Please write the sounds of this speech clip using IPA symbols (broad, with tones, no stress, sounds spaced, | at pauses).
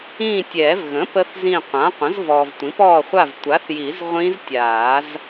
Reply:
ĩː˦˨ tʲ ɛː˨˩˦ v ɣ ə̃˩˥ p ə˦˥ θ z ĩ˦˨ qʷ ã˩˥ qʷ ə̃˩˥ z v ɔː˨ v tʷ ĩ˩˥ p ɔː˦˨ χʷ a˦˨ v tʷ a˩˥ θ j i˨˩˦ z ʁʷ ĩ˦˥ z tʲ aː˨˩˦ z